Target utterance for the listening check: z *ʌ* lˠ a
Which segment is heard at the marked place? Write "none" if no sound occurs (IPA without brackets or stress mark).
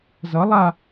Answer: ʌ